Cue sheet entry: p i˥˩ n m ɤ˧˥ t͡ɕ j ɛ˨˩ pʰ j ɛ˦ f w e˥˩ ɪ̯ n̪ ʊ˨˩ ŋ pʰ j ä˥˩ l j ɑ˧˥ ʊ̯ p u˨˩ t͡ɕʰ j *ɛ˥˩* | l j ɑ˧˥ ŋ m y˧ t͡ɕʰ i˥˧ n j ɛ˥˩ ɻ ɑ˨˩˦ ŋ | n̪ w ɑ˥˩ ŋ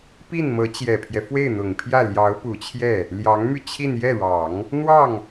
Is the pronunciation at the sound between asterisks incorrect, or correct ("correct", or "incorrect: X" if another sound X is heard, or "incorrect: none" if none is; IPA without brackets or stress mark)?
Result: correct